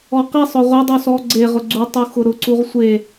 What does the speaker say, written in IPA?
ɔ q i sˤ ʊ ʁʷ e dˤ u s ɔ ɡ͡ǀ e ʁ ʊ ɡ͡ǀ u tˤ u x ʊ ɾ ʊ ǀ u ʁ sʷ e

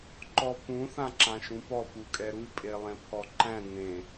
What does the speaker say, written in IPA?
ǃ ɔ p ũ θ ã ǁ ã ʃ ũ p ɔ p u kʼ ɛ ɾ u pʼ e lˠ ẽ pʰ ɔ ǃ æ̃ n ẽ

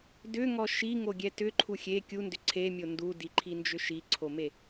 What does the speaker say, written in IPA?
d ʏ ŋ ɔ ʃ i ŋ o ɡʲ ɛ t ʏ ǃʰ u xʲ e kʲ u n d ʏ ǀʰ e mʲ o n d u d i ǃʰ i n d͡ʒ ʏ ʃ i ǀʰ o m e

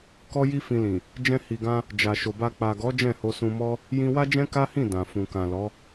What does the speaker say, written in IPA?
k ɔ˦ j i˦ f ĩ˧ l ĩ˨ | d͡ʒ ɛ̃˧ h i˨ ɡ ã˧ | d͡ʒ a˨ ʃ o˨ b a˧ k͡p a˨ ɡ ɔ˨˦ d͡ʒ ɛ̃˦˨ h o˧ s ũ˧ m ɔ˦ | j ĩ˧ w a˦ d͡ʒ ɛ̃˦ k a˦ h ĩ˦˨ d ã˨ f ũ˨ k ã˨ l ɔ˨˦

